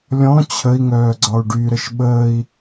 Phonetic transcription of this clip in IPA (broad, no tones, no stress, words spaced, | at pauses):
lʲɔ̃ t͡ɕʰəi̯ŋœː ɡ͡ǀɒu̯ɖyɾəʃ ɓəːi̯